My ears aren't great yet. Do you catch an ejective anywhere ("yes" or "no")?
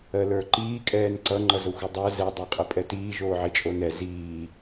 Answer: yes